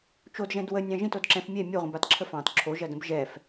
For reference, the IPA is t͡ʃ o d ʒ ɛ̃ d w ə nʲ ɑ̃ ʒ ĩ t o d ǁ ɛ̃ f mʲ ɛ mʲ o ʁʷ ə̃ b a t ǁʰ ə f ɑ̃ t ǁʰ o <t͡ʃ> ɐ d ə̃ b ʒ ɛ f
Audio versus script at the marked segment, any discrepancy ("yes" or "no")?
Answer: yes